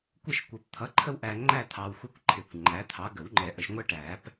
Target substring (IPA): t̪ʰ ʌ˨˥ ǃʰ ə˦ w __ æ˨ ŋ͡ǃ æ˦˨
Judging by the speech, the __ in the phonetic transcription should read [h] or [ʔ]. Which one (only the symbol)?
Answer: ʔ